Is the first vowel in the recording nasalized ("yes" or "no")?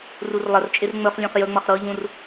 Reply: no